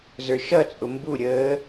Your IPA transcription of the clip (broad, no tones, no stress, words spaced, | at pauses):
zə˞ʃʌt͡sʼʊ mbuɾʲəː